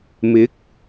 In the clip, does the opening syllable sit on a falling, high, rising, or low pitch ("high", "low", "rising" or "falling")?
rising